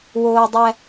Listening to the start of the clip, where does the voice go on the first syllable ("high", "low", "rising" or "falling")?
low